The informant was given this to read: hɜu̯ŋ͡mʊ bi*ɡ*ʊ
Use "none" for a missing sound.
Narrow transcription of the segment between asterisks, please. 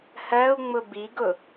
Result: ɡ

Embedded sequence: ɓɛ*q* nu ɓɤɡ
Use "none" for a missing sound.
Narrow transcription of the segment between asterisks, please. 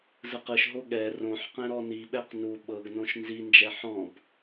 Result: q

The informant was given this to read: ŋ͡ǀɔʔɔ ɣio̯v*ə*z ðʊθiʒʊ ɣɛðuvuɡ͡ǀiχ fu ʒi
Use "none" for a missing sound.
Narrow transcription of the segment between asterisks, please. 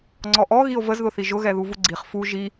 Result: ə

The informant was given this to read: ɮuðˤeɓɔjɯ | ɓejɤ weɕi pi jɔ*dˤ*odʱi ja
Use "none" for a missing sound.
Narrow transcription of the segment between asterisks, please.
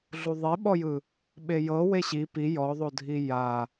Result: ðˤ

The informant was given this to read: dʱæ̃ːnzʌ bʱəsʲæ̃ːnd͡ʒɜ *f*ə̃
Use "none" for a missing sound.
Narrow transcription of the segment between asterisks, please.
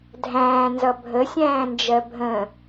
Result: bʱ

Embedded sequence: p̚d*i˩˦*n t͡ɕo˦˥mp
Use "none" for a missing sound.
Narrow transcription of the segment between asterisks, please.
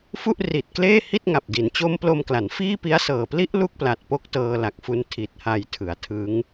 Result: i˩˦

